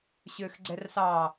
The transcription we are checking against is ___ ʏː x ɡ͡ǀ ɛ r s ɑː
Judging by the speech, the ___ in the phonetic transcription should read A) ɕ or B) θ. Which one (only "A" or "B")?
A